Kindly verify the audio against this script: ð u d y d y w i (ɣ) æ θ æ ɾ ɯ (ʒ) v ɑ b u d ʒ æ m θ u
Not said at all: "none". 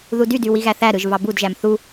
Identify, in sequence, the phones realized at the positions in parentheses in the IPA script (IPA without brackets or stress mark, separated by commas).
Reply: ɣ, ʒ